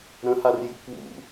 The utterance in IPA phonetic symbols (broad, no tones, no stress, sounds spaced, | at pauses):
ɾ ə̃ h a r j ṵ k w ṵ